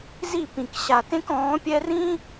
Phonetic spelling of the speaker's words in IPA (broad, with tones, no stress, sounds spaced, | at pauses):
z i˦˨ p ĩ˨ k ɕ a˨ t ẽ˦ k ɔ̃ː˨˦ pʲ ɛ˦ r ĩ˦